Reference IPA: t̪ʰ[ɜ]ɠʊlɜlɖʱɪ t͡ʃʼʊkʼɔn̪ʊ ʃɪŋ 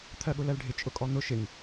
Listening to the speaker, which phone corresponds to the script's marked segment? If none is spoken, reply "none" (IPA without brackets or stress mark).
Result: ɜ